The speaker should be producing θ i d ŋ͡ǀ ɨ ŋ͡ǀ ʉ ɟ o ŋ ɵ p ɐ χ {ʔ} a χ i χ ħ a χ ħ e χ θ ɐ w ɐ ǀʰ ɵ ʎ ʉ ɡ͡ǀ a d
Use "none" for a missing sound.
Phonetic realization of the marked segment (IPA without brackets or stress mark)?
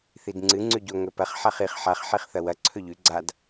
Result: ħ